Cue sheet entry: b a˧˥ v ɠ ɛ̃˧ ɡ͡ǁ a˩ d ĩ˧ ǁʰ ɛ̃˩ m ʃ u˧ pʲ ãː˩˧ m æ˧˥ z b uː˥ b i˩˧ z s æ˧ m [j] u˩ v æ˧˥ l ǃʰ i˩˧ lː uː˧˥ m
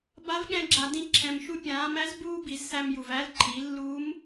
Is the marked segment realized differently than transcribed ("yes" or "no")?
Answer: no